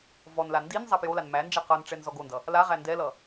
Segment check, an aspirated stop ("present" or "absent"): absent